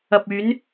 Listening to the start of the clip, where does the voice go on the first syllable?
low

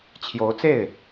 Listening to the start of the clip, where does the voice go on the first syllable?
rising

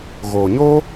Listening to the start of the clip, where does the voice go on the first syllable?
low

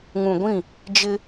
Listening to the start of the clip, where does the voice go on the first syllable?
low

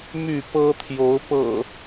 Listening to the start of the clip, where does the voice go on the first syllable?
falling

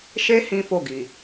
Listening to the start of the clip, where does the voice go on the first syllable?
high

